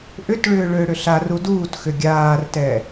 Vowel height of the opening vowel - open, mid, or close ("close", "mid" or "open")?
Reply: close